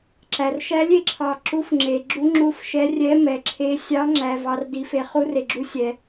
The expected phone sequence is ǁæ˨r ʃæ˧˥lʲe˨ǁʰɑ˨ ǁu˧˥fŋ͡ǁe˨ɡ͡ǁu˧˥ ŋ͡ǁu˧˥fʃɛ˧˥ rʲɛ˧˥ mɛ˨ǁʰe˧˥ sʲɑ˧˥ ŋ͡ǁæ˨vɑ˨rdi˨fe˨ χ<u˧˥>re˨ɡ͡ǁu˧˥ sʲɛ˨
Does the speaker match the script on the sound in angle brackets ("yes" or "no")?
yes